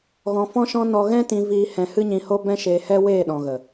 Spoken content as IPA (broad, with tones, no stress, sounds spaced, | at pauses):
ɣ ɔ̃˧ f ɔ̃˦ ʃ ɔ̃˦ n ɔ˧ ɣ ɛ̃˦ t ĩ˧ v iː˧ h ɛ̃˧ h ɨ˦ ɲ ĩ˧ h o˦ b ɛ̃˦ ʃ eː˧ h ɛ˦ w eː˦˨ ɗ ɔ̃˨ ɣ ə˨